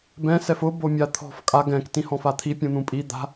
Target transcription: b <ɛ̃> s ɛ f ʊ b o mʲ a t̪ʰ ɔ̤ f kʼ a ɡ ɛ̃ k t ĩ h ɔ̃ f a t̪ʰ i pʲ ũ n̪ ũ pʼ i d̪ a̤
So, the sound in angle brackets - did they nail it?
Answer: yes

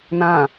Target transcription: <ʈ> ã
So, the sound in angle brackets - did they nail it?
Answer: no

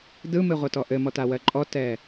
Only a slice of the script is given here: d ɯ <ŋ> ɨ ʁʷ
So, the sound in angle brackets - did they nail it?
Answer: no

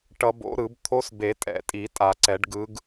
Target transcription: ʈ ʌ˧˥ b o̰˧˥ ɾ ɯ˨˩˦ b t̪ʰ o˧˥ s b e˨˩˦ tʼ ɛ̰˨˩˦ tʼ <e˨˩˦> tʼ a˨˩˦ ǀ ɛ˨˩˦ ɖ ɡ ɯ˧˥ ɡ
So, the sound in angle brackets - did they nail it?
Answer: no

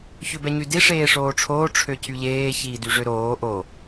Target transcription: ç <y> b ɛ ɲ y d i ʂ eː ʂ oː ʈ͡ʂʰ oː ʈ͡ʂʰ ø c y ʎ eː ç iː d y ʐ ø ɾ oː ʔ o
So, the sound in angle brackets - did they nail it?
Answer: no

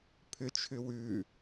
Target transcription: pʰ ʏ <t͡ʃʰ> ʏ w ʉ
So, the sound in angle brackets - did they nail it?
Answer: yes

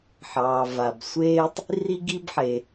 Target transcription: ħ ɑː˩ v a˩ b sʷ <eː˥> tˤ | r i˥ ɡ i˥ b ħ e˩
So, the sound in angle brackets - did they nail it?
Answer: yes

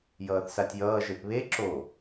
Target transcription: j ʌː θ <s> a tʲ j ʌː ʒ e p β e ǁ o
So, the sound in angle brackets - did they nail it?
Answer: yes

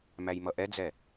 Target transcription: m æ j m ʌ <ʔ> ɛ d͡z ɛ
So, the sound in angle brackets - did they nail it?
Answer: yes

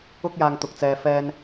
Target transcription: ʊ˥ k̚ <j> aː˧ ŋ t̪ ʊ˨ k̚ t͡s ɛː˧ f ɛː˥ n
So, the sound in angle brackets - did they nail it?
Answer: yes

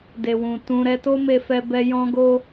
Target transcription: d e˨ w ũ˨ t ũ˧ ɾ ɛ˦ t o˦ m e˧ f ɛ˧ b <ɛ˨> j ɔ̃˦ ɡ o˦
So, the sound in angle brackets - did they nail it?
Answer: no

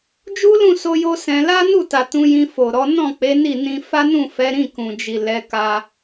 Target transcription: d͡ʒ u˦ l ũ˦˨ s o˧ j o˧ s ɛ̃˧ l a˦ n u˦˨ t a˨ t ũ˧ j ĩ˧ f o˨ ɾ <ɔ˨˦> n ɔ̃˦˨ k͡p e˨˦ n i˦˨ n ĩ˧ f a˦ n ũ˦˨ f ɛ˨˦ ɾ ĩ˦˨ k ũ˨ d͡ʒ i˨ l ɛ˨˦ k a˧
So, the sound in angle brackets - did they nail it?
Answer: yes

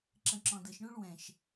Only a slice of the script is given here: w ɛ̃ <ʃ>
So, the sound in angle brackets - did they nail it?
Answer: yes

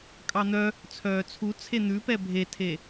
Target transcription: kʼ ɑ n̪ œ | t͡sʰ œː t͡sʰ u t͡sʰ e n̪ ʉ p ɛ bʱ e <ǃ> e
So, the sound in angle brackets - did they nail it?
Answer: no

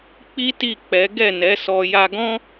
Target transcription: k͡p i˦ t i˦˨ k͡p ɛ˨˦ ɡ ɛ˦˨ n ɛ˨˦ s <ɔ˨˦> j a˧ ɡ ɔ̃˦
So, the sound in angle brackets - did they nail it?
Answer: no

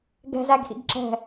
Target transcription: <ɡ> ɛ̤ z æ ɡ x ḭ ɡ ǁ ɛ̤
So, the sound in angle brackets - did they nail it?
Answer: yes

